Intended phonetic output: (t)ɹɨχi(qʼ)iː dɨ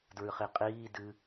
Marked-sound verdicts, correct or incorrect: incorrect: d, correct

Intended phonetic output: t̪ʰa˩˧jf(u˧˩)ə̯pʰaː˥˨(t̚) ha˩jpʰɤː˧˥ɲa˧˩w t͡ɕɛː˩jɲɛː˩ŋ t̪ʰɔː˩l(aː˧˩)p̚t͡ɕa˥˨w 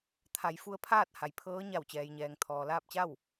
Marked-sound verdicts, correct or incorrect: incorrect: u˧, correct, incorrect: aː˥˨

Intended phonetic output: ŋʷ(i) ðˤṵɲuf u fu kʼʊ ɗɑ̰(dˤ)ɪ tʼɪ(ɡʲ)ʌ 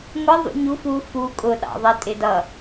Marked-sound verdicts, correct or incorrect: incorrect: ɪ, incorrect: ðˤ, incorrect: d

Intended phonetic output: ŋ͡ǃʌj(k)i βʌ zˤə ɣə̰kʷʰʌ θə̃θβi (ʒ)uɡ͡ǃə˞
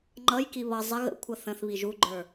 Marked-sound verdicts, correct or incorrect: correct, correct

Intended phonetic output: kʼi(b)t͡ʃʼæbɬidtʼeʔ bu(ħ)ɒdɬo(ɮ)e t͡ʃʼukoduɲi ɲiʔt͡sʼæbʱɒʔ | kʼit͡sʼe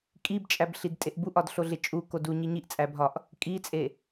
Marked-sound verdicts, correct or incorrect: correct, incorrect: ʔ, correct

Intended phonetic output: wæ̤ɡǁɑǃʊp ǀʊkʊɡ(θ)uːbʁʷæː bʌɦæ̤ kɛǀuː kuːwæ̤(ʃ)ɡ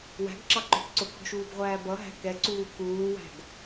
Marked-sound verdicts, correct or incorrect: incorrect: ʃ, incorrect: none

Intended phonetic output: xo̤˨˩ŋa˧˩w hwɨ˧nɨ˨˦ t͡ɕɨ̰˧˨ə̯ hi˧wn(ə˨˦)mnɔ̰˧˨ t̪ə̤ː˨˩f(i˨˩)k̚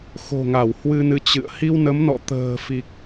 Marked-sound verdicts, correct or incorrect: correct, correct

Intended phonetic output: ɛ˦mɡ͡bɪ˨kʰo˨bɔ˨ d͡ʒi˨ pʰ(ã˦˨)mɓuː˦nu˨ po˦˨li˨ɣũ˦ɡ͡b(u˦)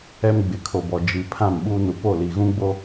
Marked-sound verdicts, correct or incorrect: correct, incorrect: o˦

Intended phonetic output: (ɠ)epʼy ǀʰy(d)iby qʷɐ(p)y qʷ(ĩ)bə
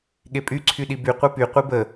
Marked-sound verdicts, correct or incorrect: correct, incorrect: ɗ, correct, incorrect: i

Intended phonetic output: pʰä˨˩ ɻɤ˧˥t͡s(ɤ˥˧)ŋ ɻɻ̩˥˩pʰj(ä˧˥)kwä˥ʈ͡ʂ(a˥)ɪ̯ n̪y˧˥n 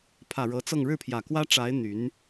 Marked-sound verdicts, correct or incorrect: correct, incorrect: ä˨˩, incorrect: a˧˥

